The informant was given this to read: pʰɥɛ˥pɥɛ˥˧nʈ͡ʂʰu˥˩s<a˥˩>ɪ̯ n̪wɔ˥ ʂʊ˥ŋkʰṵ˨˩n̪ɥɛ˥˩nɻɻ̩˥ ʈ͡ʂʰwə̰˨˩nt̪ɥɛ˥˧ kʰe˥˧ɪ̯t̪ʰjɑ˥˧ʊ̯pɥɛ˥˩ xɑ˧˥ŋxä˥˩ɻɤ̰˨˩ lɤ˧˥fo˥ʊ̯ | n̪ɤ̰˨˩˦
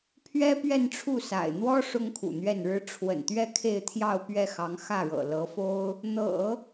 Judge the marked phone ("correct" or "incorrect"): incorrect